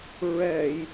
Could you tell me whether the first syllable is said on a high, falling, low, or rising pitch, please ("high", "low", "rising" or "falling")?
low